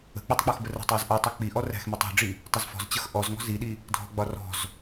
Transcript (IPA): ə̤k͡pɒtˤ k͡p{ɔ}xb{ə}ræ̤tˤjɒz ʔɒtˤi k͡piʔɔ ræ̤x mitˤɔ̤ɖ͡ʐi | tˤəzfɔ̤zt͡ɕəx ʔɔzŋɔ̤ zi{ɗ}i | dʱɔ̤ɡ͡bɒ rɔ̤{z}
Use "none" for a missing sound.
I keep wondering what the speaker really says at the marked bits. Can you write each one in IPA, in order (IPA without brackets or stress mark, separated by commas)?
ɔ, ə, ɗ, z